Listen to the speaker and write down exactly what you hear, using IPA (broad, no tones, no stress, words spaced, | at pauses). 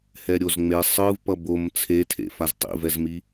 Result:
hɛɾʲozŋ͡me sˤɯv pʌbom t͡sʰetʰḛ faztˤḭvɛzmi